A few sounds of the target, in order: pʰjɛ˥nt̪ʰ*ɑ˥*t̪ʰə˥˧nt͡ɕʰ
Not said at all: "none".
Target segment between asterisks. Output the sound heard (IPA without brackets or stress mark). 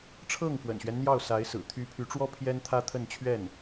ä˥